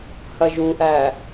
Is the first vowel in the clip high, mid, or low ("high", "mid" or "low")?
low